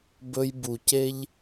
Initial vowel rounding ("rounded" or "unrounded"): rounded